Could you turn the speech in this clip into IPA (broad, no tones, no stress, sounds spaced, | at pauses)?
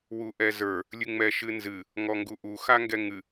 w u ʔ ɛ z ə˞ | lʲ ɨ ŋ͡m ɛ ʃ ɨ n z ɨ | ŋ ɔ ŋ ɡ u ʔ u x a ŋ ɡ ɛ ŋ ɨ